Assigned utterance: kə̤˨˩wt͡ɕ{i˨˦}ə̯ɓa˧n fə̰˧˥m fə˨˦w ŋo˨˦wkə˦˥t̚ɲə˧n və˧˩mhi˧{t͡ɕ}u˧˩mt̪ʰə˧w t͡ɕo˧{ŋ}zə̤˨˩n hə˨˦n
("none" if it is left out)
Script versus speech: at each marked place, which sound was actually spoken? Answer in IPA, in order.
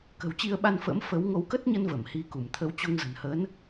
i˧, k, ŋ

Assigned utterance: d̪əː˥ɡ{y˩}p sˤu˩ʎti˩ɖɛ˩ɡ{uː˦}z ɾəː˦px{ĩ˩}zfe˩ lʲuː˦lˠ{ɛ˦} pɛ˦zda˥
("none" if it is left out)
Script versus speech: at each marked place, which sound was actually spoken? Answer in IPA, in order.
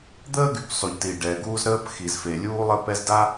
y˩, uː˦, i˩, ə˦

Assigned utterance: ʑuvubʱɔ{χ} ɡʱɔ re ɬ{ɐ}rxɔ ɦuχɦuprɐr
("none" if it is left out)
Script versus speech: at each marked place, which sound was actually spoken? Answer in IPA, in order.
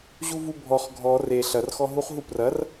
χ, ɐ

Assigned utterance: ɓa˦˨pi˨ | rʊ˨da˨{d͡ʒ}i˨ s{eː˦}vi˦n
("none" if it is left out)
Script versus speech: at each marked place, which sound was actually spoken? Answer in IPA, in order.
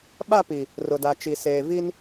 t͡ʃ, eː˨

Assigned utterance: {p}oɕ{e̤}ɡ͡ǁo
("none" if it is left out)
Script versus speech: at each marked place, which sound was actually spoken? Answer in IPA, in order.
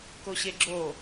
k, e

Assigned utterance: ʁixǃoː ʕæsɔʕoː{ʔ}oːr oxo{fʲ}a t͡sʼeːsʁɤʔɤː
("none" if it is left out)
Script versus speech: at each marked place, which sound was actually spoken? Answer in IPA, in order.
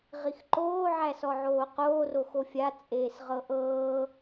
q, fʲ

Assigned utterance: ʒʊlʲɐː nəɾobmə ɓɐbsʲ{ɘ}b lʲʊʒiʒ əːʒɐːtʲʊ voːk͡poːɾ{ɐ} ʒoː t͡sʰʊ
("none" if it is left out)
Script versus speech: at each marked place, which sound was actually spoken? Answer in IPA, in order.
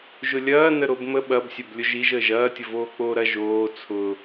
ɘ, ɐ

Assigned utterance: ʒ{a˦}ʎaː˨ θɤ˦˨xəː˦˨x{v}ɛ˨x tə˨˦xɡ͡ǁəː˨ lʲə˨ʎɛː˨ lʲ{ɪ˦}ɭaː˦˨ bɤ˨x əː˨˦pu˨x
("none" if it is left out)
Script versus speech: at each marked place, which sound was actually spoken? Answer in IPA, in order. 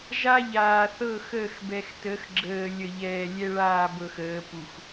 a˦, b, ɛ˦

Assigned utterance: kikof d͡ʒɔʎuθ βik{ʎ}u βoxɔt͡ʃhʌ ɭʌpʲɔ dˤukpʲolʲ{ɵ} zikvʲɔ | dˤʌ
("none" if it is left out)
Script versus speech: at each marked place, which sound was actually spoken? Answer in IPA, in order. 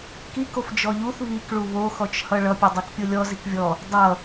ɭ, ɔ

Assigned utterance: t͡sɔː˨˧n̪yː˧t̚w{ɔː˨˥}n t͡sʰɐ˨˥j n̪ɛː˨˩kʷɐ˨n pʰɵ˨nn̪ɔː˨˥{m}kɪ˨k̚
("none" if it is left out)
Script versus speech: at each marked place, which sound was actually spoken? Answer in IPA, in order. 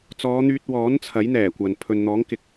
ɔː˨˥, ŋ

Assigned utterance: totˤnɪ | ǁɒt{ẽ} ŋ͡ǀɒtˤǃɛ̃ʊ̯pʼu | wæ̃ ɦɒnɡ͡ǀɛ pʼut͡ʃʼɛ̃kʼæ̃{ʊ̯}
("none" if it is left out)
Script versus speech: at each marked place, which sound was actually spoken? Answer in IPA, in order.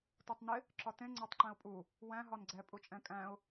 ẽ, ʊ̯

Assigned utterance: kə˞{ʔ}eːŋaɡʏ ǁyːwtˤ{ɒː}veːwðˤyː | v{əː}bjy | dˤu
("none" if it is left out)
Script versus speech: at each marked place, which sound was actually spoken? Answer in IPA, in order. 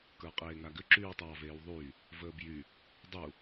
qʼ, ɑː, əː

